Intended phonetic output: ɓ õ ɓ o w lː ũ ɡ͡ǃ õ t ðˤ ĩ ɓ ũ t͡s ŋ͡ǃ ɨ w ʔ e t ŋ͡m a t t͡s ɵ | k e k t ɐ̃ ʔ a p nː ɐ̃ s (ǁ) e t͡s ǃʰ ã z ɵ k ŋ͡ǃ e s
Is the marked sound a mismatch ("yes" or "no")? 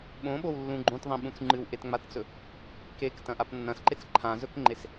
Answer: yes